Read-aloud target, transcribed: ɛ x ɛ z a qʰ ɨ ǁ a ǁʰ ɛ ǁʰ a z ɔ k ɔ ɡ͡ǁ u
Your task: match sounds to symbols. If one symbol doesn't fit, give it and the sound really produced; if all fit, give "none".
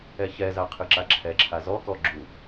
x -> ç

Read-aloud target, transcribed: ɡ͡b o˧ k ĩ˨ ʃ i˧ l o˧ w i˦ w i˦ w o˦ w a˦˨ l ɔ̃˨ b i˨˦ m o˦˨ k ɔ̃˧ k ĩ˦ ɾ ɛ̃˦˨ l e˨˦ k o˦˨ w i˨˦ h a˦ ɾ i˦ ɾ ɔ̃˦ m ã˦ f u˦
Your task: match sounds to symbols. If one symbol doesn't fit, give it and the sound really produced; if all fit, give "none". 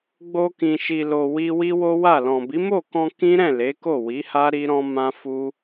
none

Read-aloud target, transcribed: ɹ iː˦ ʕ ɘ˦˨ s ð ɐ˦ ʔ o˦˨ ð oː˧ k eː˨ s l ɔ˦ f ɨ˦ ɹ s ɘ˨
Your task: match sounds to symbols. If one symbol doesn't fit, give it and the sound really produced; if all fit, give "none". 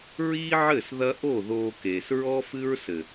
l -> ɹ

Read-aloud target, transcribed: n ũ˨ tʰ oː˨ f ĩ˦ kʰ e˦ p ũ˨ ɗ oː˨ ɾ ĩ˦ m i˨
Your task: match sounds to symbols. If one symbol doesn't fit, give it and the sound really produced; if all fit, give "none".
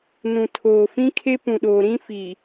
m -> f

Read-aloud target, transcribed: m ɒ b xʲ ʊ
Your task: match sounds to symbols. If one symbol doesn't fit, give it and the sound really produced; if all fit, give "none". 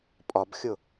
m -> pʼ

